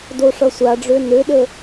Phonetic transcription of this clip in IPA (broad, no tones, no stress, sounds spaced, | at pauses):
d o ʂ ʌ sʷ a ɖ͡ʐ ø n ø ɗ ə